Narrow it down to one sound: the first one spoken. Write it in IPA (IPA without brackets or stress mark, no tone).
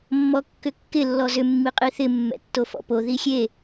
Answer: mː